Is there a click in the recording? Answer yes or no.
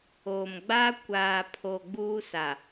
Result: no